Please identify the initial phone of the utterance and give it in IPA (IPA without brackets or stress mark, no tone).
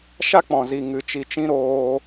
ʃ